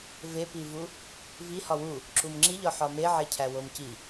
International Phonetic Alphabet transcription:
vepivu | vihɒ wu | ǁumŋ͡ǁiʎɒ ħɒmeʕe cʰæwomci

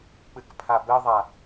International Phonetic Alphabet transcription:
k͡pɨkpʰabɘðˤa

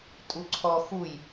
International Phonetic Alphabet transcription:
tʼuǀʰɔ xuj

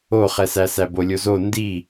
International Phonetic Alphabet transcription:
oχɛsæsæ bolʲozo ndi

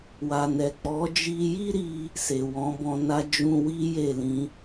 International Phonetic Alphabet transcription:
wa˨nɛ˨k͡pɔ˨˦ d͡ʒi˧ji˦ɾi˧ | se˨wɔ̃˨˦bɔ̃˧na˦ d͡ʒũ˧wi˦ je˦˨lĩ˧

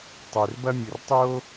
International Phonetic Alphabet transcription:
tˤʏ˨r bɐ˦mʲɘ˨rtˤo˦

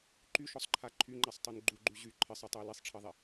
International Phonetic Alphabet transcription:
ǃyʃɔsˤǃʰa ǃʰyŋ͡ǃasˤtˤun ɡ͡ǃuɡ͡ǃy ʑy ǃʰɜsˤɛtˤui̯ lisˤʈ͡ʂʰɜðˤi

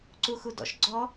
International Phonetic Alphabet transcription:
ǀuxudɔ̰ʃ ɡ͡ǀɔ

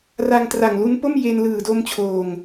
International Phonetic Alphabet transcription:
ra˧ŋ tra˨˩ŋlu˦˥npo˥˩m je˧n lɯː˨˩do˧mt͡ɕʰoː˨˩ŋ

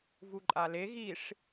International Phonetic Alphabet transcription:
vuǃʼale ɣiʂ

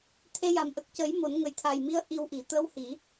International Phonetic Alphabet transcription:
t̪ʰe˧ja˨˩m ʔə˨˩k̚cə˨˩˦j mo˨˩˦nŋə˨˩jt̪ʰa˨˩jmi˧˥ə̯ ʔi˧wʔi˨˩˦ t̪ə˧˥whi˨˩˦

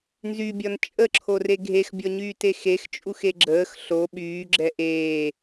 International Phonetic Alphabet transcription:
nzybʲɒn t͡ʃʼəǁʰore ɡʱexbʲɔɲyːte xext͡ʃʼuxe ɡ͡ǁəːx ɬo ɓyːɡ͡ǁɛ ʔeː

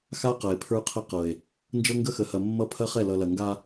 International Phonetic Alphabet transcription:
xa˦qɐ˨e̯ pʰə˞˦qʰɐ˦qɤ˨e̯ | nd͡ʒɤ˦ŋɡə˦xə˨hɐ˨ mːʌ˦pʰɐ˦χɛ˦˨ lʌ˨lɐ˨ŋɡa˦

